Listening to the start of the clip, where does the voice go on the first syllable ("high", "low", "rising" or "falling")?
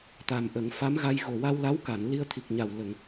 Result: low